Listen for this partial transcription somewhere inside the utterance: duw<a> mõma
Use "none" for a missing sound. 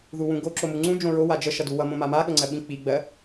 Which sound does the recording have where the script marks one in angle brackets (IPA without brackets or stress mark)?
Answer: ʌ